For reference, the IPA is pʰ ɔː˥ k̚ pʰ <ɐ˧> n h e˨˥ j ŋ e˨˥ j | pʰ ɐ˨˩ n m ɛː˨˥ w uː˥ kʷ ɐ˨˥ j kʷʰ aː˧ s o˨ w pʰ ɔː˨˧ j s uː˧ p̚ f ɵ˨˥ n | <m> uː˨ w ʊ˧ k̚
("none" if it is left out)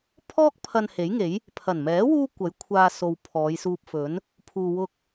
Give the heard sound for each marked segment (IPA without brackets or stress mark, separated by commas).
ɐ˧, pʰ